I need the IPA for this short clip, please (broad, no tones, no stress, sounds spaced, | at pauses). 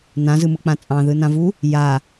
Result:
n ã z ɯ m ɯ k͡p ã t͡sʼ ɑ̃ ð ɯ n ã v u | j a